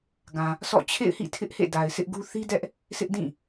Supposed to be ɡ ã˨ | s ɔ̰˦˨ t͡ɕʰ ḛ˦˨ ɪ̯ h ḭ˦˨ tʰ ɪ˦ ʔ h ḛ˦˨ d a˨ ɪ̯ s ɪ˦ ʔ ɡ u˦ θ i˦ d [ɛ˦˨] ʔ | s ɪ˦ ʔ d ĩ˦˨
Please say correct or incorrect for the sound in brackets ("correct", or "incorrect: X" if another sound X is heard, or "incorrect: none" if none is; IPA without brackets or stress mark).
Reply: incorrect: ɛ˦